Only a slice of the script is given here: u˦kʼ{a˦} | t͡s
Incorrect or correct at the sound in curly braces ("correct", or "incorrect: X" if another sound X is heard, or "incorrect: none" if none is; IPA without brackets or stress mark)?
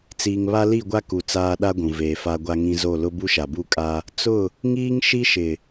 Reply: correct